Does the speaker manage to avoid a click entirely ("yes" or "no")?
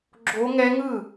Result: no